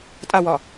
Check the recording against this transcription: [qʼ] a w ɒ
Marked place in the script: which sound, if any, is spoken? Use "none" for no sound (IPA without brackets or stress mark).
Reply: tʼ